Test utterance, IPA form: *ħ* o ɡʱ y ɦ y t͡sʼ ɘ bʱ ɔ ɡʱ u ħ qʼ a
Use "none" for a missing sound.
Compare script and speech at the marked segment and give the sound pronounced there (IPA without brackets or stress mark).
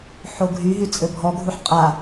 ħ